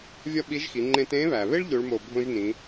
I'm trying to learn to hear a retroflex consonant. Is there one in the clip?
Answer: yes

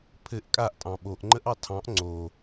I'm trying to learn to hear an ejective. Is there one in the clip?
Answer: yes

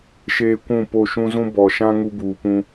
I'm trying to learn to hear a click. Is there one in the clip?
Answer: no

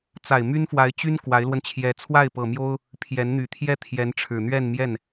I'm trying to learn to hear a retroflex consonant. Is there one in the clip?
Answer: yes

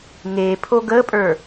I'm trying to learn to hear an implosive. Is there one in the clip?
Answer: no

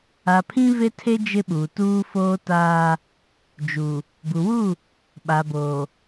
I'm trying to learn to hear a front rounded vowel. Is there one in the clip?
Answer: no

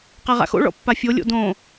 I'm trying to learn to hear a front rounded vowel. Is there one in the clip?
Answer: no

